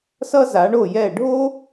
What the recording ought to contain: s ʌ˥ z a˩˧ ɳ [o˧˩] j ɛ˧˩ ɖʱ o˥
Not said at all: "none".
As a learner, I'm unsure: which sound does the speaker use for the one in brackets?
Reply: o˧˩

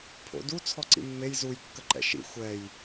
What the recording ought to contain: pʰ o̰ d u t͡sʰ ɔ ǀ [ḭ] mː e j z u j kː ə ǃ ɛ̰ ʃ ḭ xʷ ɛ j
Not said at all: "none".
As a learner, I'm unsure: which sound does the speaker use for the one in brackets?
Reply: ḭ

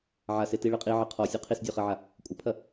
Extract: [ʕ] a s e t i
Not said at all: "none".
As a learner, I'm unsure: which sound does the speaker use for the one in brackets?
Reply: ʕ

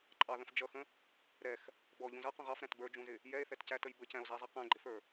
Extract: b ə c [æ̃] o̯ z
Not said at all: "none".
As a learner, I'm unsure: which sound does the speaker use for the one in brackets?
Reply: æ̃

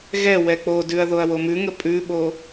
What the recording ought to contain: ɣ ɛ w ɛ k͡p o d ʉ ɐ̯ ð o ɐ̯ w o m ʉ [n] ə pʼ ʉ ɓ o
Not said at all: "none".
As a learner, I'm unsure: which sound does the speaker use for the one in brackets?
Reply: ŋ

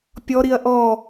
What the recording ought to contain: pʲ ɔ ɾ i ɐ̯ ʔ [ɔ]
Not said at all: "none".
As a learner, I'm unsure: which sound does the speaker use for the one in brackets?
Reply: ɔ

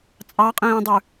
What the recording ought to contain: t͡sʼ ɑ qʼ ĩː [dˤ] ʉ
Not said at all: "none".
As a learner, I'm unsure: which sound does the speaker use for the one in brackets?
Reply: dˤ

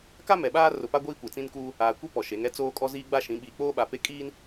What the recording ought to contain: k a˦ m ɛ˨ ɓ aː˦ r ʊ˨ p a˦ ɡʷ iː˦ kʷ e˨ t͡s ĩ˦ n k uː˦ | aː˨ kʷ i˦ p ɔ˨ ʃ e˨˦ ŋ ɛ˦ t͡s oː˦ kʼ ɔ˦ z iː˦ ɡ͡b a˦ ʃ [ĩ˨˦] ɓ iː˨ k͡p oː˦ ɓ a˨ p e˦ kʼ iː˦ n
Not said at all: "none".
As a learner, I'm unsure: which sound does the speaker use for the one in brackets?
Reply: ĩ˨˦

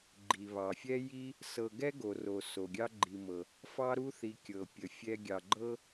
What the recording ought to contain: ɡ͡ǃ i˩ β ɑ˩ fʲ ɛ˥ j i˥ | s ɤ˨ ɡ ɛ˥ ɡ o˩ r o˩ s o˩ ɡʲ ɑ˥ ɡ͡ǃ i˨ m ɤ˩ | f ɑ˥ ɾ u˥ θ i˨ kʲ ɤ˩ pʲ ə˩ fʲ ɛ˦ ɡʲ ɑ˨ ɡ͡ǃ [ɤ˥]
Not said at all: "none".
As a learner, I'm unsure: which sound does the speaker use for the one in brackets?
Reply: ɤ˥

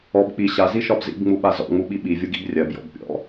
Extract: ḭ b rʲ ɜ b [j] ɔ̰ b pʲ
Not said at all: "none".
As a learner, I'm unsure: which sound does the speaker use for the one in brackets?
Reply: j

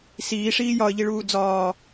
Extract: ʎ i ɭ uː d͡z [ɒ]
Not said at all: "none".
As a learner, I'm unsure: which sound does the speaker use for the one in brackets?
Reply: ɒː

